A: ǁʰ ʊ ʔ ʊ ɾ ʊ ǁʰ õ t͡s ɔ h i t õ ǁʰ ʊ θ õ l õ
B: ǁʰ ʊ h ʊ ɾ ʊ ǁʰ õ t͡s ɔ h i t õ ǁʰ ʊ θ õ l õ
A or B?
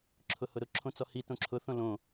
B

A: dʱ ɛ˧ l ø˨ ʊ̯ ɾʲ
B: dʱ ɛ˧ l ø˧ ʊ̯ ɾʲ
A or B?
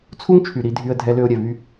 B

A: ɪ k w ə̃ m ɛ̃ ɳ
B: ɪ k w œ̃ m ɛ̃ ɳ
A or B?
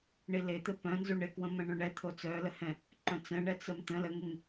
A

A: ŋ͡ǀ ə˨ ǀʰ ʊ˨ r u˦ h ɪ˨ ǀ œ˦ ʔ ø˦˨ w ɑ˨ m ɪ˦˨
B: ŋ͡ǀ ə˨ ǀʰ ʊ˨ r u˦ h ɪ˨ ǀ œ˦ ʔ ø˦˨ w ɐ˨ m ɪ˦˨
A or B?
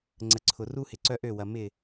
B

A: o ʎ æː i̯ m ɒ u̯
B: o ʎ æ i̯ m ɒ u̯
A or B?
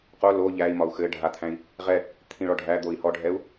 B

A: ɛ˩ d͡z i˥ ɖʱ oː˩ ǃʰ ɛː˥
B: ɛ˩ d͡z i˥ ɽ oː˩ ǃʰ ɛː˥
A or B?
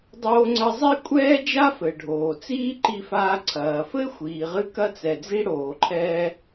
B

